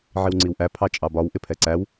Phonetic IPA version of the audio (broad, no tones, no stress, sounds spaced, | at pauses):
ʕ i w ŋ͡ǀ i w ʔ æ pʰ ɑ t͡ʃʼ ɑ b ɒ w ʔ ɪ pʰ ɛ ǀ æ w